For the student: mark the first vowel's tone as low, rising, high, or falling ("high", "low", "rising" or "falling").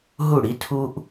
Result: falling